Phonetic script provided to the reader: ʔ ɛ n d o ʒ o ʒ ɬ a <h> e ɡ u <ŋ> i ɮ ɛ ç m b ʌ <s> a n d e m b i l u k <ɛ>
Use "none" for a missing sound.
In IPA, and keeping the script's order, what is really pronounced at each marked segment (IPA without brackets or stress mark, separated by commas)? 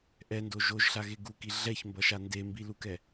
ɣ, k, ʃ, ɛ